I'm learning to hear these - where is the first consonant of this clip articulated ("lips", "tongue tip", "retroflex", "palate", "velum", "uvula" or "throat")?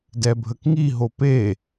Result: tongue tip